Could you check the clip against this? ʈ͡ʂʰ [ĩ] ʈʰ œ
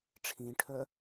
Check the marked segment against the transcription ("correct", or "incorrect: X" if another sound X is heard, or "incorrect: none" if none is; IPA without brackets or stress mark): correct